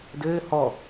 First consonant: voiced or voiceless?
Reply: voiced